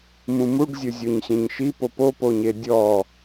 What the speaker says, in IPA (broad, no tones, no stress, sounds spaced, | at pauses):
m ũ m u ɖ zʲ ʊ zʲ o ɲ ɕ ẽ ɲ ʃ i p o p o p o ɲ e dʲ ɔ